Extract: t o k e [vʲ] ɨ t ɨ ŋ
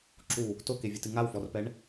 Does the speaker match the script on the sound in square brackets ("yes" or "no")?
yes